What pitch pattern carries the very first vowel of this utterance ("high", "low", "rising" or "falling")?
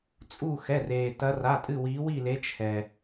falling